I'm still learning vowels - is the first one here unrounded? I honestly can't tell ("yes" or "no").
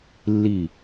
yes